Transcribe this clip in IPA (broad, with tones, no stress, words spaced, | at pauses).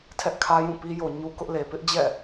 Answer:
tʰɛ˦ʔkʰä˦jũ˦˨ pi˦jo˨ ɲu˦kʊ˦ʔle˨ pɪ˦ʔd͡ʑɛ̰˦˨